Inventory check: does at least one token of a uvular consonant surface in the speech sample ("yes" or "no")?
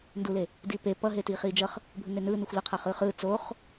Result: yes